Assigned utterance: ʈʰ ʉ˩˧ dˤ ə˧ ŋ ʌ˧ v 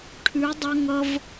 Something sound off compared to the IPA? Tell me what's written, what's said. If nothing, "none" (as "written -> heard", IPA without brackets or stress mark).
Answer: ə˧ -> ʌ˧